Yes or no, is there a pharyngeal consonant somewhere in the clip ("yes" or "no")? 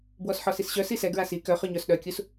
yes